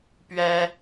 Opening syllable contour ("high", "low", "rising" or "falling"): high